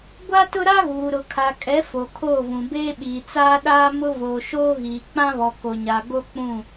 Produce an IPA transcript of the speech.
ɡʷ a˦ t ʊ˦ ɾ a˦ ɣ uː˨ ɾ ʊ˨ kʰ a˨ kʼ ɛ˨˦ f o˨ kʰ oː˦˨ v ũ˨ b eː˦ ɓ iː˨ t͡s aː˦ ɗ aː˦ m ʊ˦ v oː˨ ʃ oː˦ ɣ iː˨ k͡p ã˦ β ɔ˨ k o˨ ɲ a˨ ɡ o˦ k͡p ũ˦˨

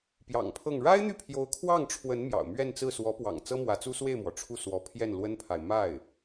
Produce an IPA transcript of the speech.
p j ɑ̰˨˩ ŋ pʰ ɤ˥˩ ŋ ɻ a˥ ɪ̯ n̪ y˥˩ pʰ j o˧˥ ʊ̯ kʰ w ɑ˥˩ ŋ ʈ͡ʂʰ w ə˧˥ n m j ɑ̰˨˩ ʊ̯ m ɥ ɛ˥˧ n t͡s ɹ̩˥˩ s w ɔ˧˥ p w ɑ̰˨˩ ŋ t͡s ɤ˥ m w ä˧˥ t͡s u˥ s w e˥˩ ɪ̯ m w ɔ˩ ʈ͡ʂʰ u˥˩ s w ɔ˧˥ pʰ j ɛ˥˩ n l w ə˥ n pʰ a˨ ɪ̯ m a˥˩ ɪ̯

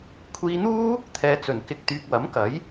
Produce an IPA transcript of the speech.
kʷʰ iː˧ n̪ uː˥ | t̪ʰ ɛː˨ t͡s ɵ˨˩ n k ɪ˧ k̚ t̪ yː˧ k̚ w ɐ˨˥ m k ɐ˨˥ j

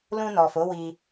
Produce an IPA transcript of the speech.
l ũ˧ n ɔ˨ f o˨˦ w i˧

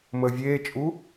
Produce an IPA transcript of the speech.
m əː vʲ eː t͡ʃʼ u

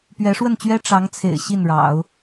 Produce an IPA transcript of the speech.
p ɥ ɛ˧˥ ʂ w ə˥˩ n t͡ɕ ɥ ɛ˥ ʈ͡ʂ ɑ˧˥ ŋ t͡sʰ ḛ˨˩ ɪ̯ ɕ i˥˩ n ɻ ɑ̰˨˩˦ ʊ̯

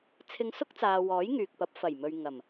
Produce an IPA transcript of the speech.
t͡sʰ ɪ˧ ŋ s ʊ˥ k̚ t͡s aː˨ w ɔː˨˥ j ŋ yː˨ k̚ p ɐ˨˥ p̚ f ɐ˨˩ j m ɵ˨ ɥ ŋ ɐ˨˩ m

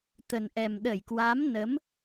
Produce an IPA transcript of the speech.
t̪ ə˨˩ n ʔ ɛ˨˩ m ɗ ə˧˩ j k w a˨˦ m n ə˨˦ m

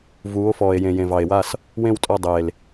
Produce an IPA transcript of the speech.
v uː˨˦ o̯ f ɔː˨ e̯ j ẽ˨ j ẽ˨ v ɑ˨ e̯ w a˦˨ s | w ẽ˦˨ w tʼ ɔ˦˨ dˤ eː˨ l

